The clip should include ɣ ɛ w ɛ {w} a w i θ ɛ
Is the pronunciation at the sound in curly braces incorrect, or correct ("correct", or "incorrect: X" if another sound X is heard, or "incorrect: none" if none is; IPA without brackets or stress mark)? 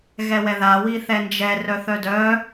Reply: incorrect: ð